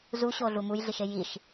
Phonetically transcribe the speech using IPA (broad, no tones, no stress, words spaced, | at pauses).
zuɕoɮu mujɮiʃe jiʃ